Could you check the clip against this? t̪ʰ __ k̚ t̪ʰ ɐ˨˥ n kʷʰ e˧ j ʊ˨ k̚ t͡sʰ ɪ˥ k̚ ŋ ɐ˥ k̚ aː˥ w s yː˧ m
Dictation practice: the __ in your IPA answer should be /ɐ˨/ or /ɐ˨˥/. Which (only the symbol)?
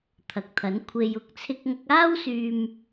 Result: ɐ˨